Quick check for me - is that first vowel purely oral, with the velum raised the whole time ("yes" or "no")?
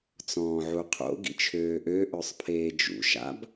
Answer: no